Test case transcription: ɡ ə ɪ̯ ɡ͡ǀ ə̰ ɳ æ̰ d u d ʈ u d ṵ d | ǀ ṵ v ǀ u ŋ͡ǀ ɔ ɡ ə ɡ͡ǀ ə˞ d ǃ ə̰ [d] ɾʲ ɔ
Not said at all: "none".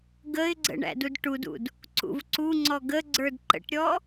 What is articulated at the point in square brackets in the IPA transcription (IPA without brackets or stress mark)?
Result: ʈ